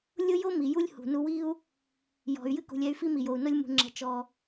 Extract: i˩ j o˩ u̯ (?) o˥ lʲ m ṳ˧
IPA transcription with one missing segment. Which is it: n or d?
n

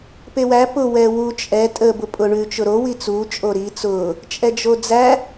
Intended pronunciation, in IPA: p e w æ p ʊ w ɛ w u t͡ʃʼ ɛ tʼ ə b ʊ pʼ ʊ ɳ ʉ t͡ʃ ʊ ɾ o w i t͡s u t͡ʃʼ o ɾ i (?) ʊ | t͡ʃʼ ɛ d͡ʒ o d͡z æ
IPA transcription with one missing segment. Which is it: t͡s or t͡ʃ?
t͡s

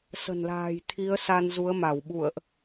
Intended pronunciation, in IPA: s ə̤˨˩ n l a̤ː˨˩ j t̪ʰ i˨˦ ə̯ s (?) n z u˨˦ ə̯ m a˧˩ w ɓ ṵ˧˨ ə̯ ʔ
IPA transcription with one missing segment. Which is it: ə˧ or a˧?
a˧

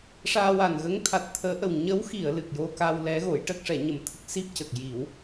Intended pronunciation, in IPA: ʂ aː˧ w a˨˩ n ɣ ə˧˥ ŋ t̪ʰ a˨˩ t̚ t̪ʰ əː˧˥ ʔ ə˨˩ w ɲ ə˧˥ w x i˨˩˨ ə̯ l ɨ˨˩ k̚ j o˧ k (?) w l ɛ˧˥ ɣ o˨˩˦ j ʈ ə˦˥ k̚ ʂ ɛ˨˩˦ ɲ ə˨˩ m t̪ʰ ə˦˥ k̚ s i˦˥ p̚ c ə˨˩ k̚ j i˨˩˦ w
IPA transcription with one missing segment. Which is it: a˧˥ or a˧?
a˧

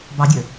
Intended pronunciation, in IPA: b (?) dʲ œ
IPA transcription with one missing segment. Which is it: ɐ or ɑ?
ɑ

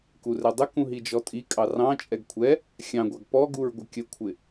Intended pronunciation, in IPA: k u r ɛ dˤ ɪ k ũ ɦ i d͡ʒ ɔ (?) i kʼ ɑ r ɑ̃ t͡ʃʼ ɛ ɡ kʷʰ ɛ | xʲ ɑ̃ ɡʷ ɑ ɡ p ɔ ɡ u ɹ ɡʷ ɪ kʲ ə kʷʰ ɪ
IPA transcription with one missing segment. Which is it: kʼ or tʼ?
tʼ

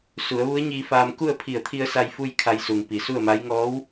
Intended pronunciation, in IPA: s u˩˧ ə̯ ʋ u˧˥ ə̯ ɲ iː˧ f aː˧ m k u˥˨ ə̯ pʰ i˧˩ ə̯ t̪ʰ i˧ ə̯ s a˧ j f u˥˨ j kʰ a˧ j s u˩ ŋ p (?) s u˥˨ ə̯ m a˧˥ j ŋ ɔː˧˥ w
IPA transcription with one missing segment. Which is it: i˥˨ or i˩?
i˩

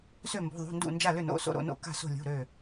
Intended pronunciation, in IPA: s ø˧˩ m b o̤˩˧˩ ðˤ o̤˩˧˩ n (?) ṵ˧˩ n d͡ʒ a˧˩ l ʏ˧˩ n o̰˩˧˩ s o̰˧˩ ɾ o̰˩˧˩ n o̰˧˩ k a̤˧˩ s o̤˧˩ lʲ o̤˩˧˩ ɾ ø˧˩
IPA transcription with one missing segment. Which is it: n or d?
d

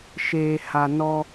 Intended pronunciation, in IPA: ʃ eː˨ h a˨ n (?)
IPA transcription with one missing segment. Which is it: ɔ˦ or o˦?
ɔ˦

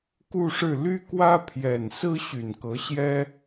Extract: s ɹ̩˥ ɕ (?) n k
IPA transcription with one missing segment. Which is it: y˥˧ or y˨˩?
y˨˩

